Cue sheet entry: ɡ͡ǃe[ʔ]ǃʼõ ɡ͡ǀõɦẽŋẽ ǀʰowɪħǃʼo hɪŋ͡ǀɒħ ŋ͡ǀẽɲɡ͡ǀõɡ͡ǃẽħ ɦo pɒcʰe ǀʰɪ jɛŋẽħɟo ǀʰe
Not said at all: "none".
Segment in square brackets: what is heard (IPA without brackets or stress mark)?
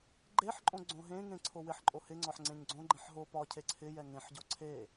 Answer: ħ